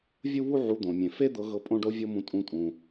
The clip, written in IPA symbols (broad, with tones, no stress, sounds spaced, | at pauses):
vʲ u˦ β u˦ ʕ u˧ d̪ õ˨ mʲ ẽ˨ f e˦ d̪ ɤ˧ ɣ ɤ˧ pʼ õ˦ ɖ o˦ vʲ o˦ m ũ˧ tʼ ũ˧ tʼ ũ˨